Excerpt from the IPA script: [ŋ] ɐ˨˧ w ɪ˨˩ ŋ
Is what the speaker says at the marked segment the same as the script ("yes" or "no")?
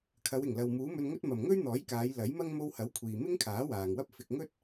no